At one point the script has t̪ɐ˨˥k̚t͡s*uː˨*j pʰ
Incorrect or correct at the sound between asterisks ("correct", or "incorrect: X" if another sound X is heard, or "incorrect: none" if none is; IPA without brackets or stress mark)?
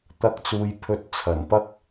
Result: correct